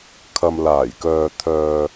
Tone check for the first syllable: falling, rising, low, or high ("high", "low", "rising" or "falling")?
low